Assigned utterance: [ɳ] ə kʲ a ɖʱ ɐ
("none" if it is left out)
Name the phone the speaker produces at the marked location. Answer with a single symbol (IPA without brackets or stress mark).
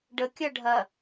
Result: ɖ